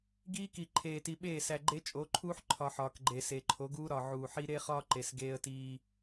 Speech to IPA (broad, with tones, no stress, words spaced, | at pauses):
ɡiː˦ki˨ ǃʰeː˨ti˨ɓeː˦˨ sæ˨ ɡ͡ǃe˦t͡ʃʼo˨˦ǃʰuː˦ħ ǃʰɒ˨ħɒː˨k ɡ͡ǃe˨se˨ ǃʰo˨˦ɡuː˦ ɾɒ˨ʕuː˨ħi˦ ɾe˦χɒː˦ ǃe˨s ɡeː˦ə̯tiː˦